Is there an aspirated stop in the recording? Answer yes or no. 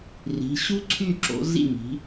yes